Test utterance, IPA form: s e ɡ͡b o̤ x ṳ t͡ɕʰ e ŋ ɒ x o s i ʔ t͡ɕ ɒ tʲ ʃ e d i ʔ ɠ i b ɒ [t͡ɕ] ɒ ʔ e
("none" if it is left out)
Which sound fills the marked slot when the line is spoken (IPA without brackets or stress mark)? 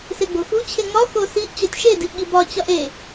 t͡ɕ